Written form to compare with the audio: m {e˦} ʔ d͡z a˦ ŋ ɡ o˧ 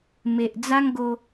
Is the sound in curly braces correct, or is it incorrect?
incorrect